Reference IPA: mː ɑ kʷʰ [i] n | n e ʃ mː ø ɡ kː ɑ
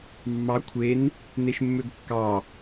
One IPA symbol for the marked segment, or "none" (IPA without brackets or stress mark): e